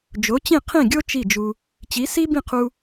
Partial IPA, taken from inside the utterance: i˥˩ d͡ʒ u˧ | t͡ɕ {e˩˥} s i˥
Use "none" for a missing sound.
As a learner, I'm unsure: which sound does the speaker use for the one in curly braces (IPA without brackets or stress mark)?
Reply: i˩˥